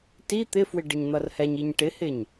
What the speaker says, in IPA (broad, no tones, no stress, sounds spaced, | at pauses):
t i t̪ ɪ f w ɪ ɖ ɪ ɲ n̪ ʌ r h ɛ ɲ i ɲ ʈ ɪ h ɪ ɲ